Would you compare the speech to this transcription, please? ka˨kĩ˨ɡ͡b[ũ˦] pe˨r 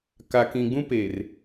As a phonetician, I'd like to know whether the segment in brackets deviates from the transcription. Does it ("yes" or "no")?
no